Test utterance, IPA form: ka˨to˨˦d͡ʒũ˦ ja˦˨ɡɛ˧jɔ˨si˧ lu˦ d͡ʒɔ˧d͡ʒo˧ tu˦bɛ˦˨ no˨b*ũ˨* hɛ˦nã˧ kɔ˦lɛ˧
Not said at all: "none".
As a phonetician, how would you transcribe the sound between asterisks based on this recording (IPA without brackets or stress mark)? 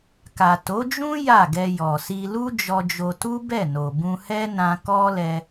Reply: ũ˧